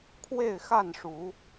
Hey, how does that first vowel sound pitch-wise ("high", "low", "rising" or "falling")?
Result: falling